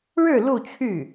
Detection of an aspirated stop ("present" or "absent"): present